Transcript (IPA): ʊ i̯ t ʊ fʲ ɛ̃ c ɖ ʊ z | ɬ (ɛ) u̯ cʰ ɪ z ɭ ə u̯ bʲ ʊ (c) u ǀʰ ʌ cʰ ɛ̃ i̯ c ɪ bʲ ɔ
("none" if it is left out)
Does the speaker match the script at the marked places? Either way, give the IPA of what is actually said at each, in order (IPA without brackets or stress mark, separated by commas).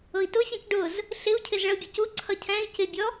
ɪ, c